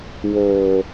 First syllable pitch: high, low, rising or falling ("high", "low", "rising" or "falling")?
low